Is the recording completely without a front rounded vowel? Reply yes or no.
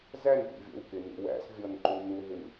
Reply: yes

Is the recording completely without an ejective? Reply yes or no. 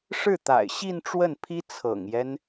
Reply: yes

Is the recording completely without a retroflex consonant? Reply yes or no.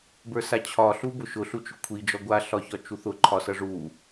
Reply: no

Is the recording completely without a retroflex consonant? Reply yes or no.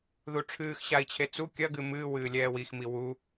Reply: no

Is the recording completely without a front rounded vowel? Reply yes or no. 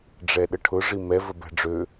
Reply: no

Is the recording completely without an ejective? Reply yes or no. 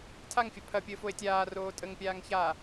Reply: no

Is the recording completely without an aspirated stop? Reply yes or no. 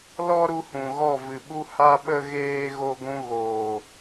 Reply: yes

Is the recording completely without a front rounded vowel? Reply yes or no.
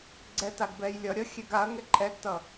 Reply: yes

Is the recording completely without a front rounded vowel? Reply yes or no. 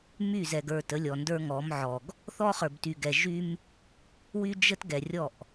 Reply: no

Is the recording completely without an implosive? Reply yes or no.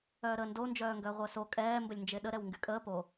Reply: no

